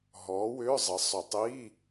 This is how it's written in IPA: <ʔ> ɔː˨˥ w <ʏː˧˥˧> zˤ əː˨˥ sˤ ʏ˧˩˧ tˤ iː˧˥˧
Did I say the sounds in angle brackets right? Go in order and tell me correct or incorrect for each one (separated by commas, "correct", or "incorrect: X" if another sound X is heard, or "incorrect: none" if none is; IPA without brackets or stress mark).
incorrect: ɦ, correct